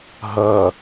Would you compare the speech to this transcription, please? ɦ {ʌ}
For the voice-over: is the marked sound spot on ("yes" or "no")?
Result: yes